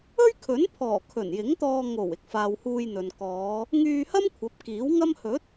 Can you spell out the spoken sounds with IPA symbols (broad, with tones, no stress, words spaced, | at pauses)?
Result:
ɵ˥ɥkʰɵ˨˥npʰɔː˨˩ kʰɵ˨˩njɪ˨˥ŋt̪ɔː˧ ŋo˨˩w ɪ˨˥k̚faː˨whuː˧jn̪ɵ˨n kɔː˨˧ | ŋyː˧hɐ˥m kʷʰɐ˨˥p̚kiː˨˥wŋɐ˥m hɵ˨˥t̚